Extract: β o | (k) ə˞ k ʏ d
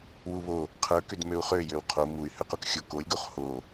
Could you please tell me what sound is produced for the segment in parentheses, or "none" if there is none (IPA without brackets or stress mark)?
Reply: qʰ